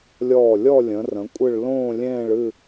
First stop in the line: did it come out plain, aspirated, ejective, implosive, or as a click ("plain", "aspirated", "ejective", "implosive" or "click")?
ejective